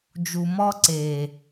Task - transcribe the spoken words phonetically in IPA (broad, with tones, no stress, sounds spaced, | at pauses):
d͡ʒ u˨ m ɔ˦ ǀ eː˨